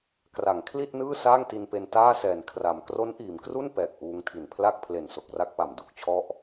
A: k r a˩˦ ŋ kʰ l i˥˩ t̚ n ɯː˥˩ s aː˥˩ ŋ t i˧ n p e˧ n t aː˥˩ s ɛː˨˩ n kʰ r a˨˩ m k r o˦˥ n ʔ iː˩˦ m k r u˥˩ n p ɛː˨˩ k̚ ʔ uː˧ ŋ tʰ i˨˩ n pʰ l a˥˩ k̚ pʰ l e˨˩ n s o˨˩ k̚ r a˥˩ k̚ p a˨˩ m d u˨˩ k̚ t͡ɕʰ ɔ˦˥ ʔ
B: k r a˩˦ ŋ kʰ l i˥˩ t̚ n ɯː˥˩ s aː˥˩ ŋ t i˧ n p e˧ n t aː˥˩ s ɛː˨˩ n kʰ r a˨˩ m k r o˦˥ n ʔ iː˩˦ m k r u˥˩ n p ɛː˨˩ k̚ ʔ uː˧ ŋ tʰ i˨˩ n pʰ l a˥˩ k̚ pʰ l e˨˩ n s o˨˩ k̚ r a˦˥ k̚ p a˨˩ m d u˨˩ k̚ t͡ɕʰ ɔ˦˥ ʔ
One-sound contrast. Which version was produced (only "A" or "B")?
A